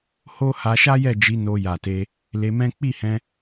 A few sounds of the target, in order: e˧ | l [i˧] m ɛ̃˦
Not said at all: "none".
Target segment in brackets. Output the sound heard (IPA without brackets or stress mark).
e˧